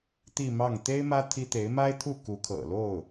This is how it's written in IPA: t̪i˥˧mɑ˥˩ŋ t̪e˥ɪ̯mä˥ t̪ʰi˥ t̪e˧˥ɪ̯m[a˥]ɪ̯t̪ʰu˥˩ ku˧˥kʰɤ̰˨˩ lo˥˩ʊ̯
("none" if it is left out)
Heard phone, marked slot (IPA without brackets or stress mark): a˥